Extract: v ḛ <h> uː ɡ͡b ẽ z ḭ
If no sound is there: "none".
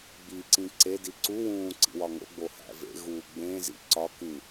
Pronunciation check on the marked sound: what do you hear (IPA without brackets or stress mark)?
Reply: ɣ